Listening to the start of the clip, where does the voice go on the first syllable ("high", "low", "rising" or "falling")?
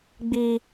high